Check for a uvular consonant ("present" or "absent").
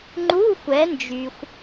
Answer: absent